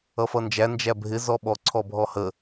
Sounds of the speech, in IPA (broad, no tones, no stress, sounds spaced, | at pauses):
ʌ f ʌ n d͡ʒ æ n d͡ʒ æ bʱ ɪ z ɔ ɓ ɔ ǀʰ ɔ bʱ ɔ h ə